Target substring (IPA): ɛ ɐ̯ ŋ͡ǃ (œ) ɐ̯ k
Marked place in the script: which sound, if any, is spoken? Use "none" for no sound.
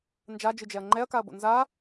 ɛ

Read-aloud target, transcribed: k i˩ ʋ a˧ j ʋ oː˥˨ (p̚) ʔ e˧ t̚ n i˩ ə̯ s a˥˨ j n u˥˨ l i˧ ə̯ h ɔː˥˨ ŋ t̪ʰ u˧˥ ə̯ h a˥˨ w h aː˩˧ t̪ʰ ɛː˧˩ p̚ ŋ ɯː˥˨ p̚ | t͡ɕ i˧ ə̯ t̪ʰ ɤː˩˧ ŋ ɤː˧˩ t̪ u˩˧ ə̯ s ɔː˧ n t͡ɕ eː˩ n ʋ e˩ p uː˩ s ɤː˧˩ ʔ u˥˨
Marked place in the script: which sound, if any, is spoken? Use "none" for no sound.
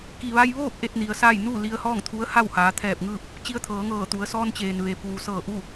p̚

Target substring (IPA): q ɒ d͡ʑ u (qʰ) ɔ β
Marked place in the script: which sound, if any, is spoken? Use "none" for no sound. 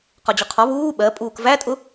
qʰ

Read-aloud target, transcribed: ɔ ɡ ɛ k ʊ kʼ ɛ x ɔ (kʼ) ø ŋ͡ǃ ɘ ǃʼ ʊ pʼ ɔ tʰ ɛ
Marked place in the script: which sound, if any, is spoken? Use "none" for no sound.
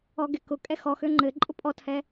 x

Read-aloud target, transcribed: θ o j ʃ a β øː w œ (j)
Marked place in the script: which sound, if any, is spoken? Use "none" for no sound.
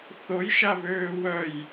j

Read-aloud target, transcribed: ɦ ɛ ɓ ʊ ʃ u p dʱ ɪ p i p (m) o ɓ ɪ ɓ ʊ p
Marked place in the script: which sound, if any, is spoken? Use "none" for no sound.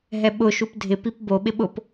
b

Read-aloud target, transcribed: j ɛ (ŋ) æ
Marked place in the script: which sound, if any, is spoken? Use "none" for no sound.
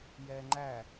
ŋ͡ǃ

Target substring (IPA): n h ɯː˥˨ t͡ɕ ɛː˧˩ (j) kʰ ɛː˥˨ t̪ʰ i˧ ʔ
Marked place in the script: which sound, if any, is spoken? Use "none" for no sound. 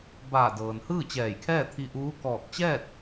j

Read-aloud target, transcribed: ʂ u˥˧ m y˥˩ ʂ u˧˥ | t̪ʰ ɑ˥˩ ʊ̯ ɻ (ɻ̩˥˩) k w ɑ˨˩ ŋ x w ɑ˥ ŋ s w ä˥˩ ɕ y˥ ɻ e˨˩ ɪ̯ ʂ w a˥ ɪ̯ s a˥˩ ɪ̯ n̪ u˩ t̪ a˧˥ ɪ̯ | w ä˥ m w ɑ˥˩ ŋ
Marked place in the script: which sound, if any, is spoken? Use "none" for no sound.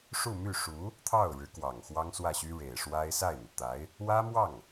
ɻ̩˧˥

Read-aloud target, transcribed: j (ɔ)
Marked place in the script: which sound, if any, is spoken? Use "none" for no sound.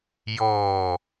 ɔː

